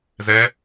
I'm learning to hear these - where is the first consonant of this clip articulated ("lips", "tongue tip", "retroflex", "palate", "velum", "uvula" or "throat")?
tongue tip